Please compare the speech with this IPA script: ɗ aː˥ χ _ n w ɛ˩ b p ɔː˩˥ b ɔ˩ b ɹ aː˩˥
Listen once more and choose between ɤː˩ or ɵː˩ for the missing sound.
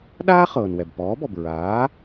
ɤː˩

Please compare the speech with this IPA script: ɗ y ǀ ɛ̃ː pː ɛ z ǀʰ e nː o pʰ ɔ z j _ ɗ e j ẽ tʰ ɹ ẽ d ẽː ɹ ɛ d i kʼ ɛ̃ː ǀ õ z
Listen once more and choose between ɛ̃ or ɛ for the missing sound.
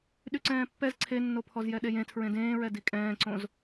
ɛ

